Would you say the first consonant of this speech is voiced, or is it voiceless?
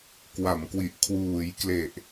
voiceless